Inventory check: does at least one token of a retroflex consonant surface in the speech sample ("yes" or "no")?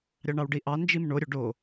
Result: yes